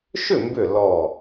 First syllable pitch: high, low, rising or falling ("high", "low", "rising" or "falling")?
falling